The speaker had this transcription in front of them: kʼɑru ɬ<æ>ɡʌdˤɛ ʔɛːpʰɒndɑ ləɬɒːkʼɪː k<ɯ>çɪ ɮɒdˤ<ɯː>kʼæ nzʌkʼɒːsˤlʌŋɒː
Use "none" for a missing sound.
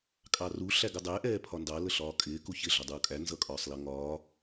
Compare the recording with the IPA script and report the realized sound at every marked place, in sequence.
æ, u, uː

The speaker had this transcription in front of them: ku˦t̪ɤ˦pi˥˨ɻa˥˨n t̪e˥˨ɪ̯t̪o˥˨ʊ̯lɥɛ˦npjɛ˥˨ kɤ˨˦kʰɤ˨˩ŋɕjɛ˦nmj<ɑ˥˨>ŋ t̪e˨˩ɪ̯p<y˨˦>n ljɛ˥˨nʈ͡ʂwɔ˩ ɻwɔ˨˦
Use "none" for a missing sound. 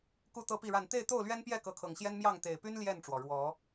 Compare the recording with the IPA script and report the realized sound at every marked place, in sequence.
ɑ˥˨, y˦

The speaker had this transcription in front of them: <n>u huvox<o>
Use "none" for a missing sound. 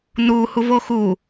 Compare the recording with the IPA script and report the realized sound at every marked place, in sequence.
n, u

